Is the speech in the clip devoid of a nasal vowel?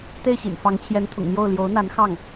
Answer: yes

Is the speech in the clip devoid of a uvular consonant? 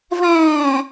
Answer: yes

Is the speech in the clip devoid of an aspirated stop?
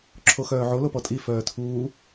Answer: no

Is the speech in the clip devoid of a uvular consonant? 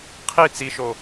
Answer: no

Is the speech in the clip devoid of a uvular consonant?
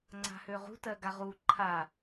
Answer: no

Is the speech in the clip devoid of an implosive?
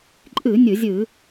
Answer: yes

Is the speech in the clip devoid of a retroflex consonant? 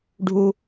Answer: no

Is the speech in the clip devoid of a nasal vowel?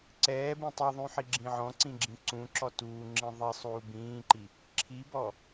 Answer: no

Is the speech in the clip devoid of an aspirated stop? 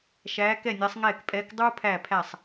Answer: no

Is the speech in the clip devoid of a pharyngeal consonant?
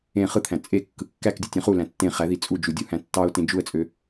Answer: yes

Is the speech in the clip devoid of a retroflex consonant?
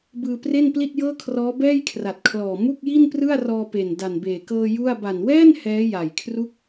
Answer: yes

